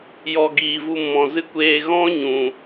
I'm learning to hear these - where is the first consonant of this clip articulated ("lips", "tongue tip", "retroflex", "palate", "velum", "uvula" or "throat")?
palate